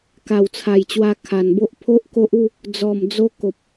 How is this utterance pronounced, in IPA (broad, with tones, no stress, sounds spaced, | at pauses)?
k a˨˩ w t͡sʰ a˨˩ j t͡ɕ w a˧ kʰ a˨˩ n b o˦ ʔ pʰ o˦ ʔ k o˦ ʔ u˥˧ | d͡z ɔ˨˩ m d͡z o˧ k o˨ p̚